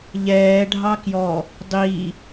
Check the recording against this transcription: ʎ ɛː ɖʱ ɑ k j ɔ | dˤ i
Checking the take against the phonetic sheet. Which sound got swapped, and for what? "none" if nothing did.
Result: none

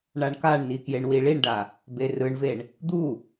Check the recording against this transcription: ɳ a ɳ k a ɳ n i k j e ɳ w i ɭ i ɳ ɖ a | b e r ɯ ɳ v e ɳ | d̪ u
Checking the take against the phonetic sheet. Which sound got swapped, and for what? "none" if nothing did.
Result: none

